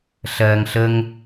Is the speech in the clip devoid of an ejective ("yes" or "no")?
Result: yes